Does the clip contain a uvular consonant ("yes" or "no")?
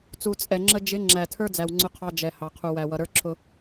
yes